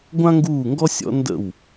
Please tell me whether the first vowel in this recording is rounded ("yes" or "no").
no